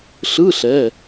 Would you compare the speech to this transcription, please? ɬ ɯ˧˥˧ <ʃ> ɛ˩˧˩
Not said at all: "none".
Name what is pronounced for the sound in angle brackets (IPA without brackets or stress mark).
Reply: ɬ